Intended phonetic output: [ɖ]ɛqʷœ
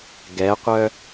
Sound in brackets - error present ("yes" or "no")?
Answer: yes